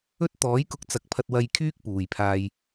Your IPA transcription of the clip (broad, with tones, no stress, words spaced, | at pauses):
ɵ˥t̚t̪ɔː˨˥jkʊ˧k̚ t͡sɐ˨˥k̚pʰɐ˧t̚wɐ˧j kʰyː˥k̚puː˨jpʰaː˧j